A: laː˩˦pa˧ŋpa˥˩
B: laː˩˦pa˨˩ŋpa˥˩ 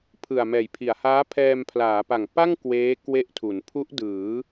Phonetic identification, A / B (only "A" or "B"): B